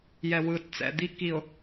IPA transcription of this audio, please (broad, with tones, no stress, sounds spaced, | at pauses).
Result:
j ɛ˨ w ɯː˨ t t͡s ɛ̰˨ d̪ i˦ k i˨ ʊ̯